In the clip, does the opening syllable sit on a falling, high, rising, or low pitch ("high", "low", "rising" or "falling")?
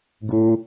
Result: high